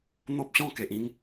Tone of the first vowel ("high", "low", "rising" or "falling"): high